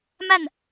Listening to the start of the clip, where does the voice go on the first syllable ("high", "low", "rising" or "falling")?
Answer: falling